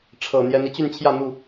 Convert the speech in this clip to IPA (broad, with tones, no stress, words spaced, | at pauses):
ʈ͡ʂʰɤ˨˩ n̪jɛ˨˦n i˨˦t͡ɕy˥˨nt͡ɕʰjä˥˨ n̪u˥˨